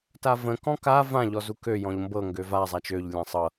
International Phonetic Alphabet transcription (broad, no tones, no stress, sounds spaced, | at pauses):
t a v ə̃ k ɔ̃ k a v ã ʎ ɔ z u k ø j ɔ̃ ʎ m b ɤ ŋ ɡ ø v a zˤ a t͡ʃ ø ʎ lʲ ã sˤ ɤ